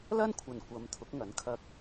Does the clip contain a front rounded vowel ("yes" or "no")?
no